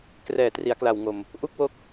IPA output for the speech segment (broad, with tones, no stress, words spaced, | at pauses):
krɛː˨˩tri˩˦a̯kla˨˩w ŋo˨˩m | ʔu˥˩k̚wo˦˥k̚